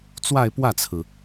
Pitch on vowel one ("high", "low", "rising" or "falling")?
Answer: falling